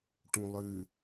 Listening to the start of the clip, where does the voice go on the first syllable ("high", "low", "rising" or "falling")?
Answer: low